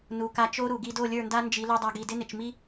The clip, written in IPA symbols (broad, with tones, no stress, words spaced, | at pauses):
nu˨ka˧ t͡ʃo˦ɾu˨ɡi˧ do˦˨lʲə˞˦˨nda˦ nd͡ʒi˨˦lu˧dˤa˧ɡ i˨dɪ˦nɪ˨t͡ʃmi˦